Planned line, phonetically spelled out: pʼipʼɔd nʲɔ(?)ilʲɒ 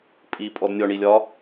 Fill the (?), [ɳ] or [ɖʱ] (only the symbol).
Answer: ɳ